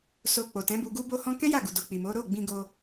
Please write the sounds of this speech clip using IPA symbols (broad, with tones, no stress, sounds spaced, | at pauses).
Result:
s o˧ k͡p o˨ t ɛ̃˨˦ b u˧ ɡ u˦ b o˧ h ɔ̃˧ k ɛ̃˦ j a˦˨ ɡ u˨ d o˨ k͡p i˨ m o˨˦ ɾ o˦˨ ɡ͡b ĩ˧ ɡ o˧